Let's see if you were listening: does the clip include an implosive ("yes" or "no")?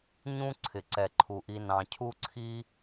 no